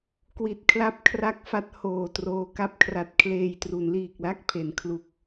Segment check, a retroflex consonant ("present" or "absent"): absent